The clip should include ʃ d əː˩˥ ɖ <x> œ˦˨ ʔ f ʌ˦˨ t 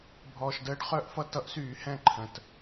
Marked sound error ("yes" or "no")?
yes